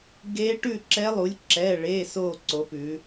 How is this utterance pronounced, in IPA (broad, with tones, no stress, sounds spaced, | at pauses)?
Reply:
ɡ e˧˥ ʈ ʉ˥˨ ǁ ɛ˧˥ lˠ u˩˥ lʲ ǁ ɛ˩˧˩ ɭ e˩˧˩ s o˥˨ ǀ o˩˥ p ʉ˩˧